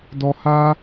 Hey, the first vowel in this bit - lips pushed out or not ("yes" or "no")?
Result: yes